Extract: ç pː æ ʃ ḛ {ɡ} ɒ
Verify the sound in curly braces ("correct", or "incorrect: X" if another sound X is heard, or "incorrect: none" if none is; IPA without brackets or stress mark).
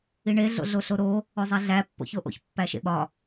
incorrect: ɓ